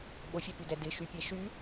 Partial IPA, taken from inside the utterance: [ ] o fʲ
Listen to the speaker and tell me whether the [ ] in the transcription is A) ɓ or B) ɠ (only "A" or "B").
A